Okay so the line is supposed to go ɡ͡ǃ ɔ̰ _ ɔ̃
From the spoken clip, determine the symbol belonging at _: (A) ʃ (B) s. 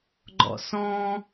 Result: B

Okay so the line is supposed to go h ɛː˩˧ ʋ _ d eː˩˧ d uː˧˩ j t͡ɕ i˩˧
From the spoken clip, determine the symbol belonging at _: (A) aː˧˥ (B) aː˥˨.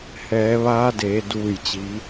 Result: A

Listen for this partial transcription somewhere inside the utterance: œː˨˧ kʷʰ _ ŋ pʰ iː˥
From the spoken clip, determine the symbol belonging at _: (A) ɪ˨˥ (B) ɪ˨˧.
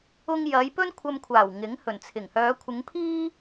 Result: B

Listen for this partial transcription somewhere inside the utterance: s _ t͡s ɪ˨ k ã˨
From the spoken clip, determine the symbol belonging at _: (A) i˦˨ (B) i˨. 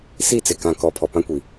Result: A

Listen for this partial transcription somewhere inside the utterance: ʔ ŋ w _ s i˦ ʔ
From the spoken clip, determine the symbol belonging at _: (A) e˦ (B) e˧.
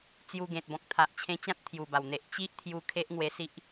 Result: B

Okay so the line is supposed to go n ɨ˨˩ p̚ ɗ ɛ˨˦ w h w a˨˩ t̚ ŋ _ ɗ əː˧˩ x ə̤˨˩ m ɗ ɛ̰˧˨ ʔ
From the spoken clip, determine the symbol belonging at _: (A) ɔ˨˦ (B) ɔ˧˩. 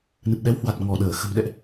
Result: B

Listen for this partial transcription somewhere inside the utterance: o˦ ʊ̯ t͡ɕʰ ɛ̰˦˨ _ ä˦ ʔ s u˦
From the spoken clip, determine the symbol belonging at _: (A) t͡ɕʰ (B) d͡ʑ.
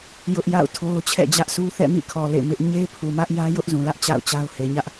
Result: B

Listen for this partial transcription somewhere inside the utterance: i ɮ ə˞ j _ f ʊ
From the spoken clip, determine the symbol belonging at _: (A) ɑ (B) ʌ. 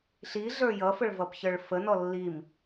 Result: B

